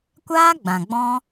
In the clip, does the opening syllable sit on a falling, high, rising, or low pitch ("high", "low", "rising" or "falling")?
high